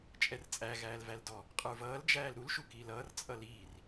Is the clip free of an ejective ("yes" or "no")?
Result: no